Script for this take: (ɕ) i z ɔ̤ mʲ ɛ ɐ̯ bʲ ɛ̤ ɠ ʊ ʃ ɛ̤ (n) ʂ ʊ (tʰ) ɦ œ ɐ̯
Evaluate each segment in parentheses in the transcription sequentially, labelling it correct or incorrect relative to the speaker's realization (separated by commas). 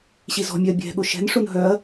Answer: correct, correct, incorrect